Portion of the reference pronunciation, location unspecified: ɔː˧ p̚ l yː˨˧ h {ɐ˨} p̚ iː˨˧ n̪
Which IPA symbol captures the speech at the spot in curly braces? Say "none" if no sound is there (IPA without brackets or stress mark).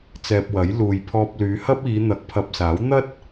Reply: ɐ˥